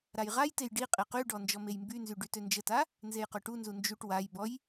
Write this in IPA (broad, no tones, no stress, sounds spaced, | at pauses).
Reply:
ɾ a j ʁ a j t e j ɖ i qʼ e q y ɖ ɔ n d͡ʒ ɔ m e j m b y n z y ɖ y t ø n d͡ʒ ə t a | n z e j q ø ʈ u n z u n d͡ʒ u ʈ w a j b ɔ j